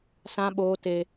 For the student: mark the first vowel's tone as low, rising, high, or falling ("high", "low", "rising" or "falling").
high